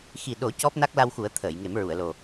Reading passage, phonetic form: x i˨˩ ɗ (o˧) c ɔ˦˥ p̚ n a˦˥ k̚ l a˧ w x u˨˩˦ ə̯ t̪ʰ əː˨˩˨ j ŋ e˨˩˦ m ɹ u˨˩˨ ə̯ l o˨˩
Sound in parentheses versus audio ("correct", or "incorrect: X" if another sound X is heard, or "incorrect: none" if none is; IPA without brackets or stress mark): incorrect: o˨˩˦